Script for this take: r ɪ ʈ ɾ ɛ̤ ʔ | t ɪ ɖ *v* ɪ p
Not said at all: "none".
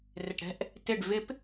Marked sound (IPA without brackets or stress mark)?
v